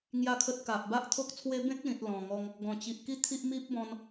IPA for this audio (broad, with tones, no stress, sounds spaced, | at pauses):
ŋ j a˥˧ kʰ ə˦ t̚ k a˨ ʔ b a˦ ʔ t̪ʰ o˦ k̚ t͡sʰ w e˦ b ẽ˦ k̚ l ĩ˨ t̚ l ɔ̃˨˩ ŋ ɔ˧ ŋ | ɡ ɔ̃˨˩ t͡ɕ i˨ ʔ k i˦ t̪ʰ i˦ ʔ m i˦ p̚ b ɔ̃˧ n